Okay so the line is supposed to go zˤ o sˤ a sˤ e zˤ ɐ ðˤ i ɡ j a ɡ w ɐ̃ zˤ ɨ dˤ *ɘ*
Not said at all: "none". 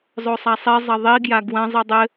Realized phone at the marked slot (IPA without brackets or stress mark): ɘ